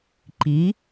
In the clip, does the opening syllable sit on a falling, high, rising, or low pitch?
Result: rising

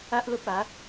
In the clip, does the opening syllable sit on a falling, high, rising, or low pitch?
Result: high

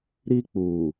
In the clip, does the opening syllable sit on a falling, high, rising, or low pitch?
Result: high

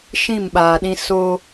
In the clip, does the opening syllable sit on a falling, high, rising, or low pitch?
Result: falling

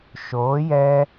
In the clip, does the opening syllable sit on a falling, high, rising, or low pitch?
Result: rising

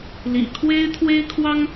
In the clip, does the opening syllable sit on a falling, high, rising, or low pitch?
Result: low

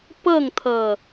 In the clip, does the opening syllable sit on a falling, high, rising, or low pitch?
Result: falling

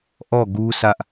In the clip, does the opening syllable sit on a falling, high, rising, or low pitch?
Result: falling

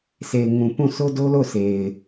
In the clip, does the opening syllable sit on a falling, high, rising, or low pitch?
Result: low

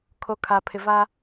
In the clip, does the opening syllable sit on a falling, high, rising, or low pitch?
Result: low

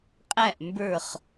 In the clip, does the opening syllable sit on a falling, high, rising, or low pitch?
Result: falling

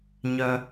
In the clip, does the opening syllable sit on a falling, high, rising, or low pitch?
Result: low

